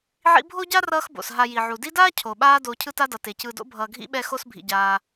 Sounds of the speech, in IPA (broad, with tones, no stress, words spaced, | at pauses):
ʕḭ˦bʱo˥ɟa˥ rʌː˦xbo̰˩sɦa˨ ji˩ʕu˩di˦daː˥ cʰo˩ɓaː˦ doː˨cʰɯ˦ta˦dʌ˩ te˩cɯː˨do̰˥bʱʌː˨ ɡʱḭ˥ɓɛ˦ xo˦sbʱḭ˩ɟaː˩